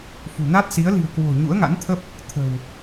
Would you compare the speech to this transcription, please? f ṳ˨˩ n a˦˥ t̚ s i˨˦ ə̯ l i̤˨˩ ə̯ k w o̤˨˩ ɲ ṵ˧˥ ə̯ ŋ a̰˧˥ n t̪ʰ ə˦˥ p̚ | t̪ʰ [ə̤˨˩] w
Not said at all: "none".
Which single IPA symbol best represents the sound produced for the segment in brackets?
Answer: ə̤˨˩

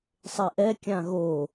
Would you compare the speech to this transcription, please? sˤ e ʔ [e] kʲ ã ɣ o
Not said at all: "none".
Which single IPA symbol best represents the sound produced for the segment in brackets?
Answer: ɛ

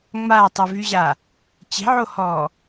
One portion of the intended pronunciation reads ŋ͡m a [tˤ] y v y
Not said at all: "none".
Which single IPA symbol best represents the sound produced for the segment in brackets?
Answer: tˤ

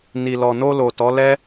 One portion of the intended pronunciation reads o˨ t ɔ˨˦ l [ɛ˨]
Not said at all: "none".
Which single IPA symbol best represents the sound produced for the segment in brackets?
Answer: ɛ˦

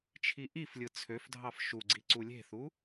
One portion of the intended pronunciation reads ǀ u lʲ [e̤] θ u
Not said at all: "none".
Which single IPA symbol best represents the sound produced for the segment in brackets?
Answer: e̤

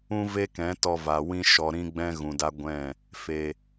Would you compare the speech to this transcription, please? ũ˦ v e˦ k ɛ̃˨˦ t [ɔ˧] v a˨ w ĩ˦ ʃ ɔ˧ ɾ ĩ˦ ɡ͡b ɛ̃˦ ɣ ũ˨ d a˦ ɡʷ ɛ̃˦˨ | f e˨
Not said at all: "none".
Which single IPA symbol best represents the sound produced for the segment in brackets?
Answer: ɔ˧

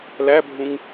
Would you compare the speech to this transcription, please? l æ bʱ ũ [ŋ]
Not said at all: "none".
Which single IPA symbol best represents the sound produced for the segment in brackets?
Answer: ŋ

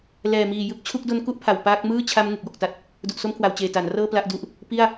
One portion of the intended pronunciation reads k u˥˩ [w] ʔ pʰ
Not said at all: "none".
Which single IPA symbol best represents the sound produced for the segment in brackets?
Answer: none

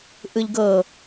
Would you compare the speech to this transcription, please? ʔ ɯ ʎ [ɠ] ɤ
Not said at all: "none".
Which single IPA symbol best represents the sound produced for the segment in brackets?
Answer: ɡ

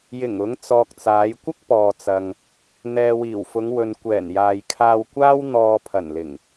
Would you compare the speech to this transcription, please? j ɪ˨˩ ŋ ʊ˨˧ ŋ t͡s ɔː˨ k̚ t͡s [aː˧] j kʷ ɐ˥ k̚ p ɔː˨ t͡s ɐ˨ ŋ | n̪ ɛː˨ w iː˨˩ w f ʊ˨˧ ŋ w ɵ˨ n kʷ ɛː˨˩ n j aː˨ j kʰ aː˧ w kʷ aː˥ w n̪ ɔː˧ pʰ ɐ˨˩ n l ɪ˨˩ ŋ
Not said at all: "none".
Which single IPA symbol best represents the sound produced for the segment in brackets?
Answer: aː˨˧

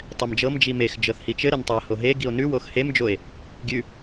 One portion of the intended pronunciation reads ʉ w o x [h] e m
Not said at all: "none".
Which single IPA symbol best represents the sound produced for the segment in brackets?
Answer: h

